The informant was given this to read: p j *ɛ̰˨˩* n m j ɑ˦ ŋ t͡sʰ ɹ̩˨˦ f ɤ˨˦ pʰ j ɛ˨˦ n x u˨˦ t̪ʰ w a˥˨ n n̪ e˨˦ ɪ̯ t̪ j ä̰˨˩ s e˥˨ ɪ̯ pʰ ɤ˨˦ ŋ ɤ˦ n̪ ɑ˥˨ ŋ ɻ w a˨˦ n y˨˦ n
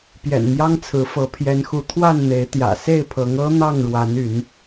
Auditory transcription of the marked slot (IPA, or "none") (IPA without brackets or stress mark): ɛ̰˨˩